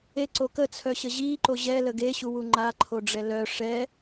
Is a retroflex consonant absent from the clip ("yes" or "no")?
no